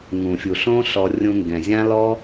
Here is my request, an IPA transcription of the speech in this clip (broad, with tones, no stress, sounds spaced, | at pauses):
ŋ ũ˨ fʲ u˨ ɬ õ˦ ɬ ɔ˧ rʲ ũ˧ ŋ ɡ ɛ̃˨ zʲ ã˦ l ɔ˦